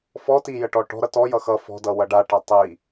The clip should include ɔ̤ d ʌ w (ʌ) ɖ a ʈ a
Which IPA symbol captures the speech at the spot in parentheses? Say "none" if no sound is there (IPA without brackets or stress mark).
ʌ